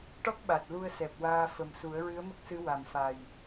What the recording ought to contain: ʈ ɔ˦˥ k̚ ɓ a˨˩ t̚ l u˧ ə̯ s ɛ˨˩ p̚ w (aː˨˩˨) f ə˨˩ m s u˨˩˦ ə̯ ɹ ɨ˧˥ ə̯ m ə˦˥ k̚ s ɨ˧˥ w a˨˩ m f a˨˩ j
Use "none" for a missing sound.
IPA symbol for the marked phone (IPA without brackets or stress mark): aː˧